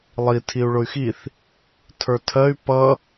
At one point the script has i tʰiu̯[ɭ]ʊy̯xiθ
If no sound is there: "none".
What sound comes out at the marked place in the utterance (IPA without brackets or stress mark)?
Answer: ɭ